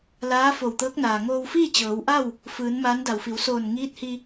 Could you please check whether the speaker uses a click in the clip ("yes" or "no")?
no